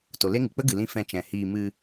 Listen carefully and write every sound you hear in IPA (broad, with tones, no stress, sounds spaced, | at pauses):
t o˨ l e˦ ŋ ɨ˨ k͡p ə˦ ɡ ɨ˨ l ĩ˧ f ɛ̃˧ t͡ʃ ɛ̃˨ h iː˧ m ɨ˧